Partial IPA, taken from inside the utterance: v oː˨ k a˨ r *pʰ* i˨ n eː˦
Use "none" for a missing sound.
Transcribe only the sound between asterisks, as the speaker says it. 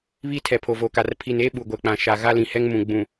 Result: pʰ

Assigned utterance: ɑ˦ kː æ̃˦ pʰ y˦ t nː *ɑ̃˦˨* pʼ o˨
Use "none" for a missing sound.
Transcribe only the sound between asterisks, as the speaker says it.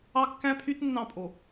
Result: ɑ̃˦˨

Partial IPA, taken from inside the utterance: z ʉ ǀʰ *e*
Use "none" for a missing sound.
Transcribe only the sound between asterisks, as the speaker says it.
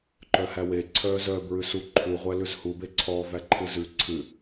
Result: ɨ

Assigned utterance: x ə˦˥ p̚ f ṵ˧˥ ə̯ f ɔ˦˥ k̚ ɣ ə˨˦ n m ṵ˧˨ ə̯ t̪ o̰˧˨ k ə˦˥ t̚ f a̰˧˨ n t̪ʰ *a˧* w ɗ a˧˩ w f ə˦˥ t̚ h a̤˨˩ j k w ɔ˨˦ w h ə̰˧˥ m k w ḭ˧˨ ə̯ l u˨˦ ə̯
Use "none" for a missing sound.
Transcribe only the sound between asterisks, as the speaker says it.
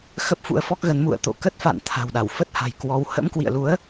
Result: a̤˨˩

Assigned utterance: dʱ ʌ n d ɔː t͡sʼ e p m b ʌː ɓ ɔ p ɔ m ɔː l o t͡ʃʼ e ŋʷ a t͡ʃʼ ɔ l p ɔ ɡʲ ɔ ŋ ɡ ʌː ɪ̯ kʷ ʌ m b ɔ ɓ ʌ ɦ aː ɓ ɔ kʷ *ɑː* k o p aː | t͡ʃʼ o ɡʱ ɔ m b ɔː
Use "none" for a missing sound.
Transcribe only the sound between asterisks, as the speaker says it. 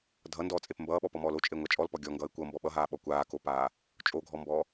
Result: aː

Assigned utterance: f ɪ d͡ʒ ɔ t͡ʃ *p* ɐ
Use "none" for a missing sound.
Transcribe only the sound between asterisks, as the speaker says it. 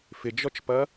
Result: p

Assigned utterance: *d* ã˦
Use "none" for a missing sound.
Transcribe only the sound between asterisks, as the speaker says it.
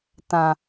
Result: t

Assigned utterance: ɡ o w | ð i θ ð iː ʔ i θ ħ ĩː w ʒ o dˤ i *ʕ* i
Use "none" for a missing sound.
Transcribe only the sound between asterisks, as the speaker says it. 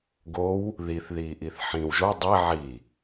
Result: ʕ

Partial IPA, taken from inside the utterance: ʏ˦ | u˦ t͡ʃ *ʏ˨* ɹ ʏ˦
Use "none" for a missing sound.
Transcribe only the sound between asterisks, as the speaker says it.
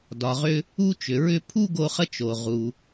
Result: ʏ˩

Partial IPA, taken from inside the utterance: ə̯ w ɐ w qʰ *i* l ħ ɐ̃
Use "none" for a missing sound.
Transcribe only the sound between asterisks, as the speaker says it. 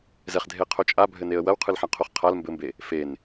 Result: ɨ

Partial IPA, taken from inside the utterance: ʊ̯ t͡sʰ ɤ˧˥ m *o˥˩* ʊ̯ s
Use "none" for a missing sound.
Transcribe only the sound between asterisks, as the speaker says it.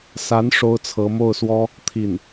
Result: o˥˩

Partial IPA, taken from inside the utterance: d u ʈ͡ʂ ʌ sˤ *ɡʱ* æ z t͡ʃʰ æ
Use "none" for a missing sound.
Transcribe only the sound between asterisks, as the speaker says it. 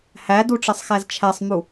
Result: x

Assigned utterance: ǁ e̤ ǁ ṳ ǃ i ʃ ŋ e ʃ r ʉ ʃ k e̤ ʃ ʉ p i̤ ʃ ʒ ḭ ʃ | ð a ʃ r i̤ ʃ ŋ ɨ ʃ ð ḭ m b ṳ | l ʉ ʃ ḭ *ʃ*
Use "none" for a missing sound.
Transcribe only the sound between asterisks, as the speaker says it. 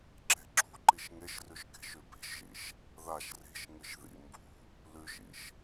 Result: ʃ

